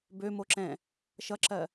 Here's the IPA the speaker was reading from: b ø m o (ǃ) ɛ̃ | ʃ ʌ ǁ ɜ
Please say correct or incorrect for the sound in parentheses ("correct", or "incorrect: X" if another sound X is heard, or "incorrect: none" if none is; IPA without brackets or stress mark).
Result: incorrect: ǁ